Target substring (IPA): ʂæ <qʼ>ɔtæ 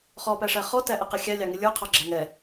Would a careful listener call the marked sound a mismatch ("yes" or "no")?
yes